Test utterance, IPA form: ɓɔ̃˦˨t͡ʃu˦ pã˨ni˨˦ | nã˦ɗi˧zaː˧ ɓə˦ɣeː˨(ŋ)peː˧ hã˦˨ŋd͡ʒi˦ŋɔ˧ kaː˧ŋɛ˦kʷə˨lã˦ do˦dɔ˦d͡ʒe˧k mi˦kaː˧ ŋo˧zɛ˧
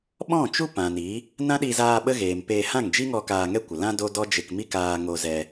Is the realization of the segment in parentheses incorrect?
yes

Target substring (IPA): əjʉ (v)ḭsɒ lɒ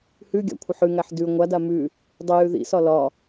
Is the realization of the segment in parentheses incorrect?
yes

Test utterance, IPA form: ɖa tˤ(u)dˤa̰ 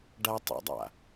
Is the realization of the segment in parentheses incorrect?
yes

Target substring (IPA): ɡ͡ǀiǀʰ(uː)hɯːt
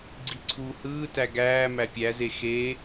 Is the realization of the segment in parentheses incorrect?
no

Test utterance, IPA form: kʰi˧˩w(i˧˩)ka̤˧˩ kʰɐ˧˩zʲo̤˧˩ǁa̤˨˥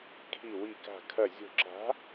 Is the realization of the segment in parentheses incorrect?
no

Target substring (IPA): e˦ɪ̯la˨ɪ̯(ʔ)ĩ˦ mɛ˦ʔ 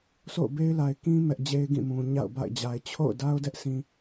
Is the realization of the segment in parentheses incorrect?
yes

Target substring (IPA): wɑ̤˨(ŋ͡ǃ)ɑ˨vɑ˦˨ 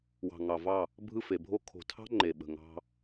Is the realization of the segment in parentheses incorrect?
yes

